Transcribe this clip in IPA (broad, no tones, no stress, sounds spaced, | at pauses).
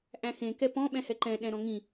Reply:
ʔ æ̃ x ẽ k ɛ p ɔ̃ ɓ ɛ̃ h ɛ ǃ ɛ̃ ɗ ɛ̃ ɾ ɔ̃ ŋ ĩ